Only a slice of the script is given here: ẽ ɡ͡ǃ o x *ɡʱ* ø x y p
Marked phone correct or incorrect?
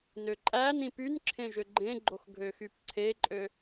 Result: correct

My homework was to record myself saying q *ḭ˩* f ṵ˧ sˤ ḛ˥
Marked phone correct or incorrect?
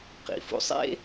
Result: correct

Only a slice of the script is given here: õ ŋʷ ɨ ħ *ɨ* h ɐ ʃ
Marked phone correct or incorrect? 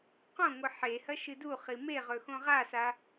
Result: incorrect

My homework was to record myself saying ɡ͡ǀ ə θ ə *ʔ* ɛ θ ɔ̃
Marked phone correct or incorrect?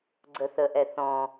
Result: correct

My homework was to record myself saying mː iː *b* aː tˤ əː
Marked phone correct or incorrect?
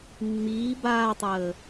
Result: correct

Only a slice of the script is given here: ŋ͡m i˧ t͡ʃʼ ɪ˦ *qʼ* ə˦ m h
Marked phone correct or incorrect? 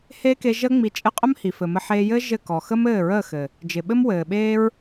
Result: correct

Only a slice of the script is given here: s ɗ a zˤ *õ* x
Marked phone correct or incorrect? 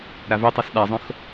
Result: correct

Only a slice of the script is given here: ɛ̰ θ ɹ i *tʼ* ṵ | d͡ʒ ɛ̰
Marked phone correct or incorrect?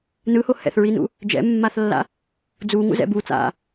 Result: incorrect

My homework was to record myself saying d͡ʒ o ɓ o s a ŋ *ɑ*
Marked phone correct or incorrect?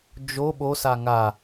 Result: incorrect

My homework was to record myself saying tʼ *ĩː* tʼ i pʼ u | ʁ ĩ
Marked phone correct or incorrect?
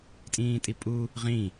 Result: correct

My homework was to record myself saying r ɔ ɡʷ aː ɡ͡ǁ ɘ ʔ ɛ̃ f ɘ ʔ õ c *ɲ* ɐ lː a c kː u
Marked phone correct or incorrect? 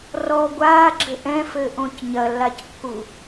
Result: correct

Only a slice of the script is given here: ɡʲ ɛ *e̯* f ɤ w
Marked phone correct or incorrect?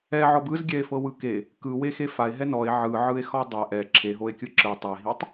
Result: correct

